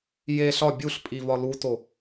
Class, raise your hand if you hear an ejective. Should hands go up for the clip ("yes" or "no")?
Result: yes